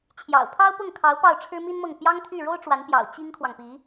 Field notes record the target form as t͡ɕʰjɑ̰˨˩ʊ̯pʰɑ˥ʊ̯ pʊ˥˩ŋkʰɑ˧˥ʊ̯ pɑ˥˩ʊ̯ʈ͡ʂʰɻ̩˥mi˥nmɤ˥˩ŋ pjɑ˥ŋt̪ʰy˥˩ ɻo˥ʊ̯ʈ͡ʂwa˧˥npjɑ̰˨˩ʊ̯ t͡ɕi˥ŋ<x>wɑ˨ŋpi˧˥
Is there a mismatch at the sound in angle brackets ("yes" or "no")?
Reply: yes